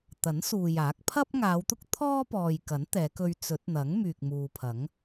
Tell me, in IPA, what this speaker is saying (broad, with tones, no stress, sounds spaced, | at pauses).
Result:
t̪ ɐ˨˥ n s uː˨ j aː˨˥ k̚ pʰ ɐ˥ p̚ ŋ aː˨˧ w t̪ ʊ˥ k̚ t̪ʰ ɔː˥ p ɔː˨ j k ɐ˨˥ n t̪ ɛː˨˧ k ɵ˧ ɥ t͡s ɵ˨˥ t̚ n̪ ɐ˨˥ ŋ m yː˨ k̚ m uː˨ pʰ ɐ˨˥ ŋ